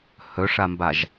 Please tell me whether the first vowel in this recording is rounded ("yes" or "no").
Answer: yes